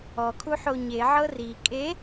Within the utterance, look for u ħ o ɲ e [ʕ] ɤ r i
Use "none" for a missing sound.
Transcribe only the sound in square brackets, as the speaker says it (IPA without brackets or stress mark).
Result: ʕ